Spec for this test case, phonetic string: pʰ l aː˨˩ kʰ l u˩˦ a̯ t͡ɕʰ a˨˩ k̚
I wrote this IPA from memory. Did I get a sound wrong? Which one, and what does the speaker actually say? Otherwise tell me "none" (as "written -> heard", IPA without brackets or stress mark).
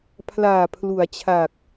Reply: kʰ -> pʰ